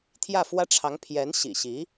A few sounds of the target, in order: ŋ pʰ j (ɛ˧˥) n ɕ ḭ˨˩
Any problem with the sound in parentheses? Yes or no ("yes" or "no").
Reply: no